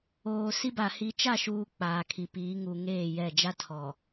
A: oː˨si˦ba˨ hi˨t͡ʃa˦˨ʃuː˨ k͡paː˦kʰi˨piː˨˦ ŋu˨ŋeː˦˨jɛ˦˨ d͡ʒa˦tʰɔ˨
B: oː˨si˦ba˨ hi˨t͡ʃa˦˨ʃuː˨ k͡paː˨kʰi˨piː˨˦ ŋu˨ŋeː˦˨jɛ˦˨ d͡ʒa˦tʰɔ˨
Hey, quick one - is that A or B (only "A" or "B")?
B